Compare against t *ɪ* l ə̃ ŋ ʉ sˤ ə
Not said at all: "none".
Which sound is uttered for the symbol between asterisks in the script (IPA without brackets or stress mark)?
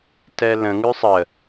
ɛ